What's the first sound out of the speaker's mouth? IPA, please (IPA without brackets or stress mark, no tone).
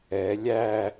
ɛ